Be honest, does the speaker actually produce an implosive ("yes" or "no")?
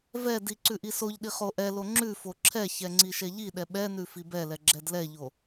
yes